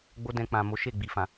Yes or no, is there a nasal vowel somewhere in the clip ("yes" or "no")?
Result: yes